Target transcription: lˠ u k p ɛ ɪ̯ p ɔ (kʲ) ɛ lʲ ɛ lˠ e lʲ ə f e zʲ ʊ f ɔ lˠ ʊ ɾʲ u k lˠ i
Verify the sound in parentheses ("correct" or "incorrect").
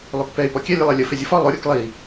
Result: correct